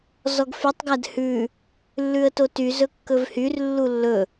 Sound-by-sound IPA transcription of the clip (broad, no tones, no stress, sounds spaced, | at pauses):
z ɔ ɡ f y tˤ ɡ æ d h ʉ | lː ʉ ə̯ t o t y z ɵ kː ɵ v h y r lː u lː ɵ